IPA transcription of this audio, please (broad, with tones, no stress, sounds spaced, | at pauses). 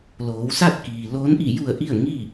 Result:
l oː˩˧ w s a˥˨ t̚ k iː˩ l oː˧˥ n ʔ i˧˩ j u˧˩ ə̯ ʔ i˥˨ ə̯ ŋ iː˥˨